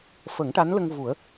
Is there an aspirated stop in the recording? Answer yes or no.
no